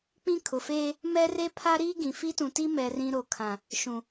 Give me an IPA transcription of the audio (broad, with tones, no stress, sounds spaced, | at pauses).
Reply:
k͡p ĩ˦ kʰ ʊ˨ f eː˦ | m ɛ˦ r e˦ pʰ a˦ ɾ iː˦ ɡ ĩ˨ f i˦ t ũ˨ t i˦ m ɛ˨ r ĩ˨ ɾ o˨ kʰ ã˨ | ʃ ũ˨